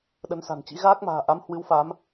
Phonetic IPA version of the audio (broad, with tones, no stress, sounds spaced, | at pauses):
ɗ ə˨˦ n s a̤˨˩ n t͡ɕ ḭ˧˥ ɣ aː˦˥ k̚ m a̤ː˨˩ ʔ a˨˦ m h w ɨ˨˦ w f a˨˦ m